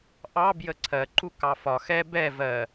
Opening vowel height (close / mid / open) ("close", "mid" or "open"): open